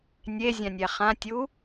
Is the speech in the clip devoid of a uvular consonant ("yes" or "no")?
no